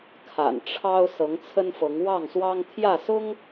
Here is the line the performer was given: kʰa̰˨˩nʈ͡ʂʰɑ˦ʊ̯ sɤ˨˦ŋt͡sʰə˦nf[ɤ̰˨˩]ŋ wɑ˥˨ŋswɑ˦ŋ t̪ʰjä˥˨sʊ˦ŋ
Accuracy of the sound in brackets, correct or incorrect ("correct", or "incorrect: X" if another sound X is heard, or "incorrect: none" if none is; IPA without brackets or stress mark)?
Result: incorrect: ɤ˨˦